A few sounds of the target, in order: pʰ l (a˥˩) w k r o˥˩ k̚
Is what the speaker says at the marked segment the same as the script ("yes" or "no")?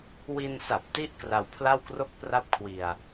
yes